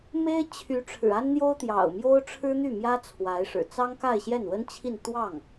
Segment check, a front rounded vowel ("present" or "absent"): present